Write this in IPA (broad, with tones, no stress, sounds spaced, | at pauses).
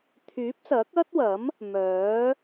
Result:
t̪ʰ yː˨˥ p̚ s ɐ˨˥ k̚ ɐ˥ t̚ w ɐ˨˥ m | m œː˨˥